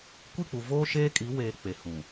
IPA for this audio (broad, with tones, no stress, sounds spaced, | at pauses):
kʷ i˦˨ k͡p u˨ v oː˦ ʃ eː˦ kʼ i˨˦ w eː˨ k͡p e˨ h ũ˨